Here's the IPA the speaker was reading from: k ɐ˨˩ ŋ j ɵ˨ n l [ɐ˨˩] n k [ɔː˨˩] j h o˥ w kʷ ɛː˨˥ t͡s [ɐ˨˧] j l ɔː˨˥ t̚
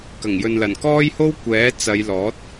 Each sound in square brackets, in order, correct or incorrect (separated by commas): correct, incorrect, correct